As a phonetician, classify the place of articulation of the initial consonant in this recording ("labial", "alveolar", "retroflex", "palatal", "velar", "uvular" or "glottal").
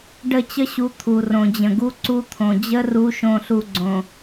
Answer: retroflex